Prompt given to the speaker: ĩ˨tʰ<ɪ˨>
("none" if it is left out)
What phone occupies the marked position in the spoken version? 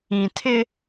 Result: ɪ˦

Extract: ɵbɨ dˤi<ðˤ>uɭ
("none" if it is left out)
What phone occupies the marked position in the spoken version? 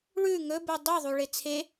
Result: ðˤ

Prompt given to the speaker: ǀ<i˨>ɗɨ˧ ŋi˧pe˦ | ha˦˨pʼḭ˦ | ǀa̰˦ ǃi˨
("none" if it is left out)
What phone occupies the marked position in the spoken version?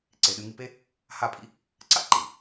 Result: e˨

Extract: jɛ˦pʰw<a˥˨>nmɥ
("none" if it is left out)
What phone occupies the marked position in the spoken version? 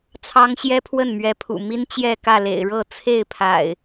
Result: ə˥˨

